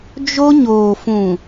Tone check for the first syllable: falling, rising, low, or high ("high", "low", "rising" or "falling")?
high